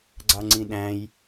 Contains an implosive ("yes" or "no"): yes